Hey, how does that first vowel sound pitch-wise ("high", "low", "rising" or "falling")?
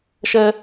high